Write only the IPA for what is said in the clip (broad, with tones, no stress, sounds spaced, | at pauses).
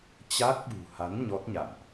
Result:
t͡ɕ a˦˥ k̚ ɓ ṳ˨˩ h a˨˦ n ɲ ɔ˦˥ t̚ ɲ a̰˧˨ n ʔ